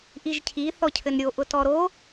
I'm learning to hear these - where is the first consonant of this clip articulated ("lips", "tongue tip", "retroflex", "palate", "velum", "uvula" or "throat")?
throat